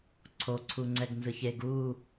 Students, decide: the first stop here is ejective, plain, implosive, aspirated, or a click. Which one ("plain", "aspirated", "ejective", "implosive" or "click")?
click